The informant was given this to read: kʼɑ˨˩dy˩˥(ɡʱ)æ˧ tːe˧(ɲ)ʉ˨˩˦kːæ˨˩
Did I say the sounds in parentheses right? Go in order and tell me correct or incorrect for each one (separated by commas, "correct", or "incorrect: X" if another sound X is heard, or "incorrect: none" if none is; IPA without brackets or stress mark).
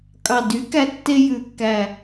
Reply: incorrect: k, incorrect: j